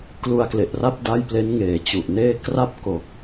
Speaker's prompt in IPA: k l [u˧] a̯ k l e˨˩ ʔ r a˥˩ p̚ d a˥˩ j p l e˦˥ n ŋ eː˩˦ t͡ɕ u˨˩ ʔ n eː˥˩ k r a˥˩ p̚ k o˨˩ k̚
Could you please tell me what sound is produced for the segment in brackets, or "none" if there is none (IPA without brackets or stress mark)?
u˧